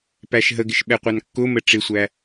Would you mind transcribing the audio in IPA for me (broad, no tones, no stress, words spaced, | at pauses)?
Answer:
pæʃɦəɡɪʃ ɓɛqʷɑnkːʊmə ʈ͡ʂɪsʷæ